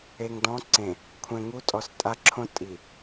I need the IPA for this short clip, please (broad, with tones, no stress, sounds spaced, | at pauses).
e˨ ŋ d ɔ̃˨˦ ǀ ẽ˨ | kʷʰ ɛ̃˨ ŋ u˨˦ tʼ ɔ˨ s tʼ a˦ ǁʰ õ˦ tʼ i˨